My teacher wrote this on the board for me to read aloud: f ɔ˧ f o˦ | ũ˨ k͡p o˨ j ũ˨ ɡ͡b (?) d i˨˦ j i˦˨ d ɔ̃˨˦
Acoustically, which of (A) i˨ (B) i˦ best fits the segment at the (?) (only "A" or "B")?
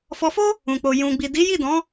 A